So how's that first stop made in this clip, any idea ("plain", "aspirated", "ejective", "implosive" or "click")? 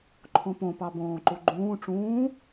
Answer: click